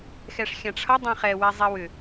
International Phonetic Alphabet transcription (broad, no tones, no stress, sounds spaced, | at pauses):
x ɛ ʂ xʲ ã ʈ͡ʂʰ ʌ dˤ ɛ̃ χ ɛ w ɛ zˤ ɛ w ʏ